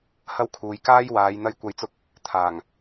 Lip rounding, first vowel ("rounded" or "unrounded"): unrounded